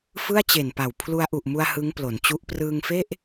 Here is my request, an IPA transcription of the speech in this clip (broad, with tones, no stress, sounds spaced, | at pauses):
f ɯ˥˩ a̯ t͡ɕ e˨˩ n p a˨˩ w pʰ l u˧ a̯ ʔ u˨˩ ʔ m u˧ a̯ h ɯ˦˥ ŋ p l o˩˦ n t͡ɕ u˦˥ ʔ p r ɯː˧ ŋ f e˥˩ ʔ